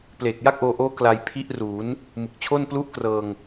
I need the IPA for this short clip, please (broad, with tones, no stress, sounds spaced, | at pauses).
p l eː˨˩ k̚ j a˥˩ k̚ ʔ oː˧ ʔ oː˦˥ k l a˧ j pʰ i˦˥ ʔ r uː˩˦ n | m ɯ˨˩ k̚ t͡ɕʰ o˥˩ n p l u˥˩ ʔ k r ɤː˧ ŋ